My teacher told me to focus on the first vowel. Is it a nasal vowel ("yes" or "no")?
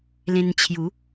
yes